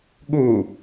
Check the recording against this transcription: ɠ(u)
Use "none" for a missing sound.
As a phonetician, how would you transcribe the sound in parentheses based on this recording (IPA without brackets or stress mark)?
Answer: u